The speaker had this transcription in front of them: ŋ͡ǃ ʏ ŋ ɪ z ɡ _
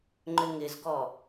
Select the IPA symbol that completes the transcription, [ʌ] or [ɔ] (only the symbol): ɔ